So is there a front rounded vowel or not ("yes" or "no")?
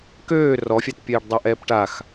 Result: yes